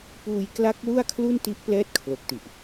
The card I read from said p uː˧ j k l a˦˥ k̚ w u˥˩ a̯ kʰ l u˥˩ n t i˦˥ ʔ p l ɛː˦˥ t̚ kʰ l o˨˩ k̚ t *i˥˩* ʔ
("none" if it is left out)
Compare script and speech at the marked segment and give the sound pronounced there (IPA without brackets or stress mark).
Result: i˨˩